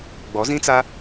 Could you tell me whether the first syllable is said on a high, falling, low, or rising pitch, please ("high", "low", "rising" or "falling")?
rising